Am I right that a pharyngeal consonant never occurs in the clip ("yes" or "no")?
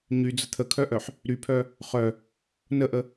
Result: no